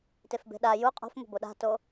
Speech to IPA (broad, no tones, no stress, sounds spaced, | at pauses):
t e f b e̤ ɗ a j u qʼ o̤ f m o̤ b o ɗ a̤ t o